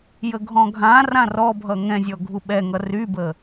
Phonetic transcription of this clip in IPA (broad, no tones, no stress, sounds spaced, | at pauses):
j ə ɡʱ ɔ̃ ɡʱ ã r ã r ɔ bʱ ʌ ŋ ɛ̃ zʲ ɔ ɡʱ u ɓ ɛ ŋ ʌ r y b ə